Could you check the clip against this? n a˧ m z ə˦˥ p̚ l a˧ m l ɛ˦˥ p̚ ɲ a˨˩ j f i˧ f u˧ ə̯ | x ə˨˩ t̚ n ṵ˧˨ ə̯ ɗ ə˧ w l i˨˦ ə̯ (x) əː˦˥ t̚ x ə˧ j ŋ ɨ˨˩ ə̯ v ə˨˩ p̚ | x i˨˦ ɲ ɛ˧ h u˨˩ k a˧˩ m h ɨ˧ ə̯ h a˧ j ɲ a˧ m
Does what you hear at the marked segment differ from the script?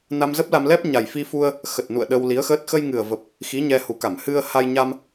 no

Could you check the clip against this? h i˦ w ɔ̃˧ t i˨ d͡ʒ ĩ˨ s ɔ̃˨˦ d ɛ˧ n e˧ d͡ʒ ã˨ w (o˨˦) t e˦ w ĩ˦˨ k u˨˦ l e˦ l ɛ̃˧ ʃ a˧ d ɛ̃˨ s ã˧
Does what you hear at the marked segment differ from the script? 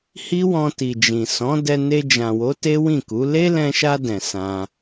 no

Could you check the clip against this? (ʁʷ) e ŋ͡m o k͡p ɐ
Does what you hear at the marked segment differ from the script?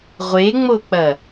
no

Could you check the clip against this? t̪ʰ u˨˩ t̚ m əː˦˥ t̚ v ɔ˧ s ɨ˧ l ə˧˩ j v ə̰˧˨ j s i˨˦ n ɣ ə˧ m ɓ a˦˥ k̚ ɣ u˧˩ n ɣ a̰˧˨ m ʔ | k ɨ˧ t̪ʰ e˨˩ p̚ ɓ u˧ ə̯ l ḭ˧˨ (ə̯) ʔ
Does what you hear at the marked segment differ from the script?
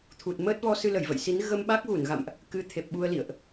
no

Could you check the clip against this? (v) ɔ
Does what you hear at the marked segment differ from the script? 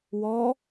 yes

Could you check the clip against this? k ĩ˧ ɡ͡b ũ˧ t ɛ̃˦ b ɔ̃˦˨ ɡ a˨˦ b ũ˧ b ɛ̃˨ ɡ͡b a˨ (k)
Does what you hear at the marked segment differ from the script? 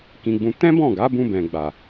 yes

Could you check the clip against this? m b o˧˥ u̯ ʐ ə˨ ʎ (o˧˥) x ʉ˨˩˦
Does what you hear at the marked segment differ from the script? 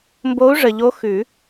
no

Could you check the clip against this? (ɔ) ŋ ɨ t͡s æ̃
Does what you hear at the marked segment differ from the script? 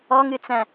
no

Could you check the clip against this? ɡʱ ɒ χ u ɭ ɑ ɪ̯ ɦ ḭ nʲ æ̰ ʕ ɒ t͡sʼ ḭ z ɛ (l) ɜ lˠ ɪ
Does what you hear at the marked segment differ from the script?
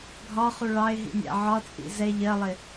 yes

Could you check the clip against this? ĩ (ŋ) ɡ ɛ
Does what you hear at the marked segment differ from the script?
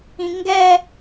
no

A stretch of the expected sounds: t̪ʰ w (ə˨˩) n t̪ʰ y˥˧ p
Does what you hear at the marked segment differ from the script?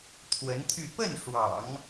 yes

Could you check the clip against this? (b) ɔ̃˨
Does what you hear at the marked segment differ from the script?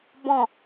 no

